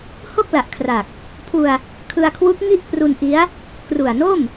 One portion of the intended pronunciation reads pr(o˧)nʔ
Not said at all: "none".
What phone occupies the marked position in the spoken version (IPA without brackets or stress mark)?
u˧